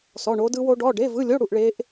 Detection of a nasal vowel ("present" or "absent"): absent